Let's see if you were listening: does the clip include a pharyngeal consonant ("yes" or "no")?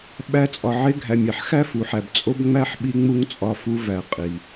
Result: yes